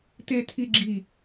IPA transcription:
t e˥ tʰ i˥ ɡ͡ǁ i˥˧

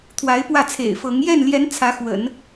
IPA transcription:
t̪ʰ w a˧˥ ɪ̯ p w ä˥˩ t͡sʰ ḛ˨˩ ɪ̯ f ɤ˧˥ ŋ j ɛ˥˩ n l j ɛ˧˥ n t͡sʰ ä˧˥ x w ə̰˨˩˦ n

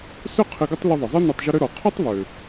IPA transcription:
s ʏ˥ qʰ ɪ˧ ɡ ə˥ tˤ l ʏ˧ ðˤ ɪ˩ zˤ ɪ˥ n y˧ tˤ ʒ ʊ˥ ɾ ʏ˥ ɾ ɔ˩ qʰ ʊ˥ tˤ β ø˩

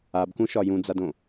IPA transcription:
a b k ũ ʃ ɒ j ũ d͡z a d õ

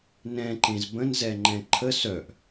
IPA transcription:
n ɛ̃ ǃ ẽ z b ə̃ n z ɛ ŋ͡ǃ ɛ̃ ǃʰ ə s œ ʔ

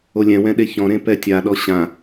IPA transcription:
o lʲ ɛ̃ w ɛ̃ ɗ e ç ɔ̃ ɾ ẽ p ɛ tʲ a ɗ ɔ ɕ ã

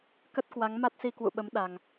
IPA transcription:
k ə˦˥ t̚ k w a˨˦ ŋ m a˦˥ t̚ s i˧ k w ṵ˧˨ ɓ ə˨˦ m ɗ a˨˩ ŋ

